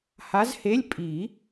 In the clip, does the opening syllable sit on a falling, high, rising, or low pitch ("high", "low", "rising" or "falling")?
rising